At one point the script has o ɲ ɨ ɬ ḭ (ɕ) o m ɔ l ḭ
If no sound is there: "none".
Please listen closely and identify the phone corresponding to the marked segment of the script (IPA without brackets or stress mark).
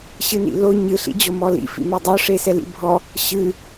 d͡ʑ